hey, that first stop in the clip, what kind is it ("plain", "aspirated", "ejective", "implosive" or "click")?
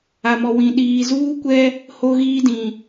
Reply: implosive